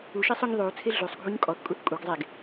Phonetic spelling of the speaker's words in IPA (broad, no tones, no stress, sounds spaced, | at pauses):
u ʃ e sˤ ʉ ɲ ðˤ ʉ u̯ t͡sʰ e ɮ ʉ sˤ ɡʱ u ɲ kʼ ɔ θ kʼ u θ kʼ u ɡ zˤ e ɡ